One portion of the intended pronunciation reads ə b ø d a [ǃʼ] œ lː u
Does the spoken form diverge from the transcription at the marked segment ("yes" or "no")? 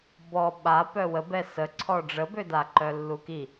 yes